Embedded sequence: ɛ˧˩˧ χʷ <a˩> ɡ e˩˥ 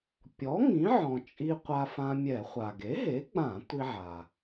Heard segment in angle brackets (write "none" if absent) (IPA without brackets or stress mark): a˩